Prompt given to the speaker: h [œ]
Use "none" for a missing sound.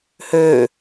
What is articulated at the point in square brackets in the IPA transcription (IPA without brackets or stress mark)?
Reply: ø